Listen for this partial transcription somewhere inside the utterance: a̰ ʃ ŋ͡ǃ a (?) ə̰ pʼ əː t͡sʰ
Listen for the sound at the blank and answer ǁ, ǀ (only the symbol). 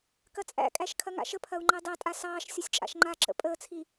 ǁ